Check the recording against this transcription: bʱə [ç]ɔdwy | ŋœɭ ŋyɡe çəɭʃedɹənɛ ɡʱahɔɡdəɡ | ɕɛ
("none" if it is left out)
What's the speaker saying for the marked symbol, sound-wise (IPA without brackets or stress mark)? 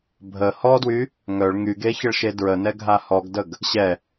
h